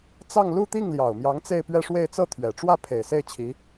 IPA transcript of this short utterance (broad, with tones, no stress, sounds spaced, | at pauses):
t͡s ɑ˥˧ ŋ l u˥˧ t̪ i˥˩ ŋ l j ɑ˨˩ ʊ̯ m j ɑ˧˥ ŋ t͡s e˥˧ ɪ̯ p ɥ ɛ˥˧ ʂ w e˥˧ ɪ̯ t͡s ɤ˥˩ t̪ʰ ɥ ɛ˨˩ ʈ͡ʂ w ä˥˩ pʰ e˨˩ ɪ̯ s e˥˩ ɪ̯ t͡ɕʰ i˧˥